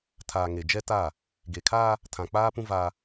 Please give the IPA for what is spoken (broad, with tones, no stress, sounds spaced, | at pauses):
tʰ aː˨ ŋ e˨ d͡ʒ ɛ˦ t a˦˨ | ɡ e˨ kʰ a˦ | tʰ ã˨ k͡p aː˦ p ũ˦ v a˦